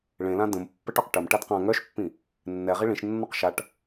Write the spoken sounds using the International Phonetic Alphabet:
ɭ ẽ l ã d ə̃ m pː ə ʈ ɔ q ʈ ə m ʈ a d q ã ŋ œ ʃ pː ĩ | nː ɛ ʁ i ɭ ĩ ʃ nː ɔ q ʃ a ʈ

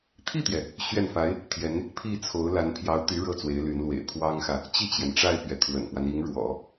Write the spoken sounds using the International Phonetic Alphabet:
t̪ʰ i˥˩ t̪ j ɛ˩ | ɕ ɥ ɛ˥˩ n f a˧˥ ɪ̯ | t̪ʰ j ɛ˧˥ n | pʰ i˥˩ t͡sʰ o˧˥ ʊ̯ l a˧˥ n pʰ j ɑ˧˥ ʊ̯ t̪ y˧˥ ɻ ɤ˥˩ t͡s w e˧˥ ɪ̯ l y˧˥ n l w ḛ˨˩ ɪ̯ pʰ w ɑ˥ ŋ x ä˨ | t͡ɕ i˥˩ t͡ɕ j ɛ˩ n ʈ͡ʂ a˥˩ ɪ̯ p ɥ ɛ˩ t̪ʰ w ə̰˨˩ n p w a˦ n i˧˥ ŋ ɻ w ɔ̰˨˩˦

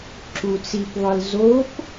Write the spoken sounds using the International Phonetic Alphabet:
ǁ u t͡s i p ðˤ ɯ l z o p

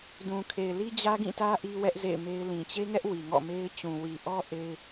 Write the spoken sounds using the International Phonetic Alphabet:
d ũ˨ kʰ e˨ ɪ̯ l i˦ d͡ʑ ä˦ ɡ ĩ˦˨ t ä˦ ʔ i˦ w ɛ˦ ʔ z ḛ˦˨ ɪ̯ m e˦ ɪ̯ l ĩ˨ t͡ɕ e˦ ŋ ɛ˦ ʔ w i˨ ŋ ɔ̰˦˨ m e˦ ɪ̯ t͡ɕ ũ˨ w i˨ ʔ ɔ˦ ʔ e˦ ɪ̯

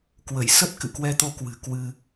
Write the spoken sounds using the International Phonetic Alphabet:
k w ə˧˩ j s ə˦˥ t̚ k ɨ̰˧˨ k w ɛ˧ t̪ o˧ k w ɨ̤˨˩ k w ɨ˧

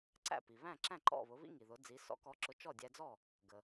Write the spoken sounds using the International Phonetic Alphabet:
ǀ æ̰˥˩ p i˩ β æ̃˥˩ ǁ æ̃˥˩ ǃ ɔ̰˥˩ β ʊ˩˥ β ḭ˥ ŋ i˩ ð ʊ˩˥ d͡z i˩˥ s ɔ̰˩˥ k ɔ˩˥ ǁ ʊ˩˥ t͡ʃ ɔ˥˩ dʲ æ˧ d͡z ɔ˥˩ | ɡ ə˩

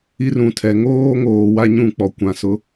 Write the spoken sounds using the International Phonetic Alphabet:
i˦ r ũ˨ tʰ ɛ˨ ŋ oː˦ ŋ oː˨ w a˦ ɲ ũ˦˨ k͡p ɔ˨ kʷ ã˨ s ʊ˨˦

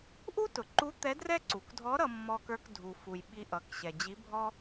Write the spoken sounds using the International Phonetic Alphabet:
ʔ u˥ t ʊ˩ ǃ u˧˥ t̪ ɛ˧˥ d r ɛ˥ ǀ u˩ k dʱ ɔ˧˥ ɾ ʌ˧ mː ɔ˧ k ə˞˧ k dʱ u˩ f u˩ j ɓ i˧ ʔ ʌ˩˧ k ɕ ɛ˩ d͡ʑ i˧˥ bʱ ɔ˥

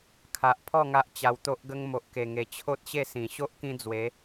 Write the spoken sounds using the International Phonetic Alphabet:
kʰ a˨ ʔ pʰ ɔ˥˧ ŋ a˦ ʔ t͡ɕ a˧ w t̪ o˦ ʔ ɡ ə˦ ŋ m o˨ ʔ k e˨˩ ŋ e˨˩ t͡ɕʰ o˦ t̚ ɕ e˥˧ s ĩ˨˩ ɕ o˦ ʔ k ĩ˧ d͡z w e˨˦

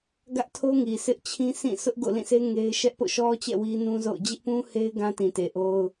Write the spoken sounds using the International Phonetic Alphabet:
ɡ ä˦ ʔ tʰ o˦ ŋ i˨ s ɪ˦ ʔ t͡ɕʰ ĩ˦ sʰ ĩ˦˨ sʰ ʊ˦ ʔ ɡ o̰˦˨ l ĩ˦˨ sʰ e˦ ŋ e˦ ɪ̯ ʃ ɛ˦ ʔ p o̰˦˨ ʃ ɔ˦ t͡ɕ ɛ̰˦˨ w i˦ n ũ˦ z o̰˦˨ ʊ̯ d͡ʑ ɪ˦ ʔ p ũ˦ h e˦ ɪ̯ ɡ ã˦ t ĩ˨ t e˨ ʔ o˦ ʊ̯

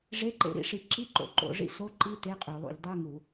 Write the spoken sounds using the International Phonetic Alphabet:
ʐ e˧˥˧ ǃ ḛ˧˥˧ ɾ ḭ˧˥˧ ʂ i˧˩˧ ǁ i˧˥˧ ǃ o̰˧˩˧ ǃ o̰˧˩˧ ʐ ḭ˧˥˧ s o˧˥˧ ǃ i˧˥˧ t e˧˥˧ qʼ œ˧˩˧ lˠ ṵ˧˩˧ ʎ dˤ œ˧˥˧ ŋ u˧˩˧

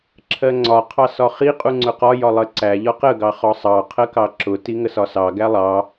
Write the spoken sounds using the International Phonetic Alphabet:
ǁʰ ɜ ŋ͡ǀ ɒ qʰ ɑ s ɒ χ i qʼ u ŋ͡ǀ ʊ q ɒ j ɒ lˠ ɜ ǀ æ ʎ ɒ q ə ɡ ɑ χ ɒ sˤ ɑ qʰ ɜ k ɑ ǁ ʊ t i ŋ ə s ɒ s ɑ ɡ æ lˠ ɑ

